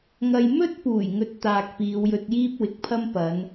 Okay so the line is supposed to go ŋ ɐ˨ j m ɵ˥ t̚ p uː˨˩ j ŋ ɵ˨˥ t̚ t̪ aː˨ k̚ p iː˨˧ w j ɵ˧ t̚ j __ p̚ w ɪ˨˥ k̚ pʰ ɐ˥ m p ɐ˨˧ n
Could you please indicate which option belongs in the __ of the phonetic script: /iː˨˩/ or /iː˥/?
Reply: iː˥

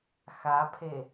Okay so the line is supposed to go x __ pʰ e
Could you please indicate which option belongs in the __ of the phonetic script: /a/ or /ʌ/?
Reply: a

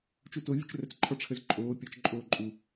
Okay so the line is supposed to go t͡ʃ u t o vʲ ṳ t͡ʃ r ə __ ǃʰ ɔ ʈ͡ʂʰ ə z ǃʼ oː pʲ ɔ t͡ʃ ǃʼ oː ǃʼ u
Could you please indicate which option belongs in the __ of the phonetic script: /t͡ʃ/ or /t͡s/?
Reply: t͡s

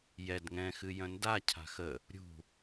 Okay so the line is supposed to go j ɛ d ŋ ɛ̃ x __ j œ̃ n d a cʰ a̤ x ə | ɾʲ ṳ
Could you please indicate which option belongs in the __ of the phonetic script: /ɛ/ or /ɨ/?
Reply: ɨ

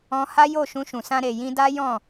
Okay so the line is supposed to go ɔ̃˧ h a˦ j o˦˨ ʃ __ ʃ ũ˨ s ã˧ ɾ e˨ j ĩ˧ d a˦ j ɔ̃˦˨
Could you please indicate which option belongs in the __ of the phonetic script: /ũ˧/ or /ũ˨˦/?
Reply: ũ˧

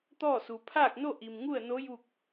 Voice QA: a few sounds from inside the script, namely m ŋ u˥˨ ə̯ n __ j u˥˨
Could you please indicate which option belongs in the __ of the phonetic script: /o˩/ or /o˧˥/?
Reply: o˧˥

